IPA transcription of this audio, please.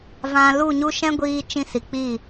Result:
v ã˨ l u˦˨ ɲ u˦ ʃ ɛ̃˦ ɡʷ iː˧ t͡ʃ ĩ˧ s i˨ k͡p i˦˨

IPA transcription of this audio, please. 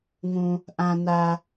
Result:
ŋ ũ˩ | ʔ æ̃˩ n æ˩

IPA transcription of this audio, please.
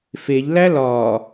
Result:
f e ʎ l æ l ɒː

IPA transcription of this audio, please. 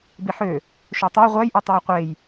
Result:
b i ħ ø | ʃ o tˤ u j ʁʷ æ j ʔ i tˤ æ j qʷ e j

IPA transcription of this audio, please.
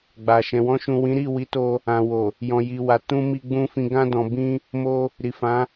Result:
ɡ͡b a˨ ʃ ɛ̃˨ w ɔ̃˧ ʃ ũ˨ w ĩ˨˦ ɾ i˦˨ w i˨˦ t o˧ | ã˨ w o˨ | j ɔ̃˨ j i˨ w a˨ t ũ˧ m i˧ ɡ͡b ũ˧ f ĩ˨ ɡ ã˧ d ɔ̃˨ b ĩ˧ | m o˧ | ɾ i˨ f ã˨˦

